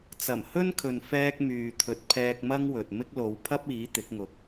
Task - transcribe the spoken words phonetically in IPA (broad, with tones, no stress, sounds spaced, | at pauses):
t͡s ɐ˨˩ m h ɵ˥ n kʰ ɵ˨ n f ɛː˧ k̚ m yː˨ t̪ʰ ɵ˨˥ t̚ pʰ ɛː˧ k̚ m ɐ˥ ŋ w ɵ˨ t̚ m ɪ˥ k̚ l o˨˧ w pʰ ɐ˥ p̚ iː˨˥ t̪ ɪ˨˥ k̚ ŋ ʊ˨ k̚